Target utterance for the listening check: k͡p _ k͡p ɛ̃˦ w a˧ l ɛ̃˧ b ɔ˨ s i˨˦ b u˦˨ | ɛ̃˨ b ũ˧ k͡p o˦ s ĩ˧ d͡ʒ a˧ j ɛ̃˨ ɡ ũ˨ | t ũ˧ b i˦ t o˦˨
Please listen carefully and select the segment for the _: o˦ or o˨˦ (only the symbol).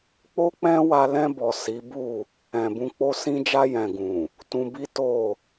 o˦